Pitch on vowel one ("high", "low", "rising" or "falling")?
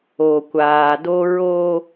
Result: low